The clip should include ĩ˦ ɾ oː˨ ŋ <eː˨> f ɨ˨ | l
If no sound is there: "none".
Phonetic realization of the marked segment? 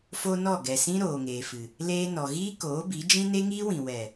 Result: eː˨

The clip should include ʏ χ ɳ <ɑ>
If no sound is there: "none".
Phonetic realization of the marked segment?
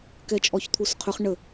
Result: ə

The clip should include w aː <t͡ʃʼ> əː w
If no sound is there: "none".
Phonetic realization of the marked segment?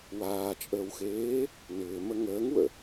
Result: t͡ʃʼ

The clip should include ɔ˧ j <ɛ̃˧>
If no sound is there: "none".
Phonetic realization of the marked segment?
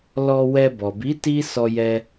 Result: ɛ˧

